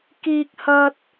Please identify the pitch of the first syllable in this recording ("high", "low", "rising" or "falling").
high